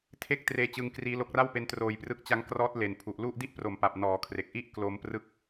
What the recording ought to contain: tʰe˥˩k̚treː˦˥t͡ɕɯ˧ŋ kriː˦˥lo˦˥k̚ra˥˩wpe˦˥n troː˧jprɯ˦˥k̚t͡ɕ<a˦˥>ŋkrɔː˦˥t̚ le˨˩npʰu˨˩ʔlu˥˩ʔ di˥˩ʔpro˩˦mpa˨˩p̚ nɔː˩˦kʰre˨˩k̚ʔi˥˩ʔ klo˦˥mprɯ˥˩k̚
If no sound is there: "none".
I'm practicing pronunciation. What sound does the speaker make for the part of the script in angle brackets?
a˦˥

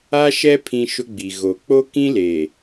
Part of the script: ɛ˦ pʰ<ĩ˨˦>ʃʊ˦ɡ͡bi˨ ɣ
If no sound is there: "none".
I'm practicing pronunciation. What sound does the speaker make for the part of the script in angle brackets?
ĩ˦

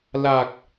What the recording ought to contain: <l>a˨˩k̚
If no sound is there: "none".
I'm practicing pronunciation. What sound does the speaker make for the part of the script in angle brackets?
l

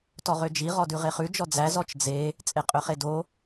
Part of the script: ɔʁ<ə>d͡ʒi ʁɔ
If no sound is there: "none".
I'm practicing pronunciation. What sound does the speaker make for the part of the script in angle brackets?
ø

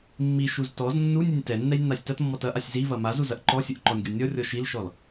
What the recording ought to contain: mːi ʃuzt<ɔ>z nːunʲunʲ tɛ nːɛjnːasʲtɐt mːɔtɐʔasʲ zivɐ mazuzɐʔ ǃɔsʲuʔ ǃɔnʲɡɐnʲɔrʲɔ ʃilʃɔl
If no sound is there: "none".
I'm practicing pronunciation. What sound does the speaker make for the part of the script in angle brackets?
ɔ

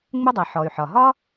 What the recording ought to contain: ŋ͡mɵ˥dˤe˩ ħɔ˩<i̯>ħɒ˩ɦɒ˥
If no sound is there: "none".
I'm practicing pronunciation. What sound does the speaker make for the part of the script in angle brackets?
y̯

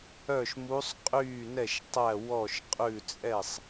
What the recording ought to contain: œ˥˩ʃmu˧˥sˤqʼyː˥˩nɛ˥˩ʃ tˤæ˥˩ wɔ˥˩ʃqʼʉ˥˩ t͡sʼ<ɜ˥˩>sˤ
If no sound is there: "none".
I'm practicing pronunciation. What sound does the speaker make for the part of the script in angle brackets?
ɛ˥˩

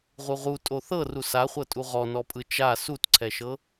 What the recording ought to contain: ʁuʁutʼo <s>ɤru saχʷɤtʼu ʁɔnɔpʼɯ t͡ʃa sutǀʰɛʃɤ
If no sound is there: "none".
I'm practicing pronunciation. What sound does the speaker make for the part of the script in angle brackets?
θ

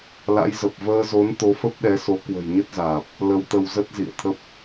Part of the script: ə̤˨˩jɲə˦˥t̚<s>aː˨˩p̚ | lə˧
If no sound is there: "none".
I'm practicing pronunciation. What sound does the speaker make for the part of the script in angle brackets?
z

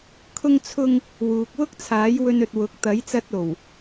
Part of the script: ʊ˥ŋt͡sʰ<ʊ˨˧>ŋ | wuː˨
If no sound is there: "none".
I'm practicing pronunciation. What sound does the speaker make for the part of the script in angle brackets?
ʊ˥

